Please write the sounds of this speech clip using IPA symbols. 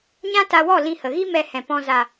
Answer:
ɲ ã˦ t a˧ w ɔ˦˨ l ĩ˧ h ə˨ ɣ i˦ m ɛ˧ h ɛ̃˨ p ɔ̃˧ z a˨

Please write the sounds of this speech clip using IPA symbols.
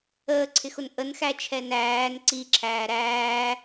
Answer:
əː ǀʰ ɪ x ʊ n ʔ ə n x æ t͡ʃʰ ɛ n æː n ǀ i ǁʰ æː ɾ æː

